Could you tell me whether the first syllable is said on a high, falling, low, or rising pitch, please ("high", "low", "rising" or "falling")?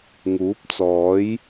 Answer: rising